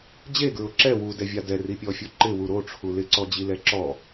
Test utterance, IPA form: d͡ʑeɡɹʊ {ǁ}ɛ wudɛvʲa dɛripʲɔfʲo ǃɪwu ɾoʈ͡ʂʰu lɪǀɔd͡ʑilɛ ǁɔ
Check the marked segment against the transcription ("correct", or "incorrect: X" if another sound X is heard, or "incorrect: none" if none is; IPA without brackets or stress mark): correct